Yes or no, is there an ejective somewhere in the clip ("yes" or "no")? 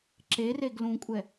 yes